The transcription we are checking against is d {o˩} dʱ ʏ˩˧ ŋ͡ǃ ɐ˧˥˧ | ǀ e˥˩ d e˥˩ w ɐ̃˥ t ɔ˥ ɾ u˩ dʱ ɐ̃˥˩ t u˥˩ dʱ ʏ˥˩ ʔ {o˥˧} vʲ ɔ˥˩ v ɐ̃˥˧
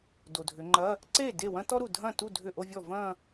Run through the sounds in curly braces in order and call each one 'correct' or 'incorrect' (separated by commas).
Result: correct, correct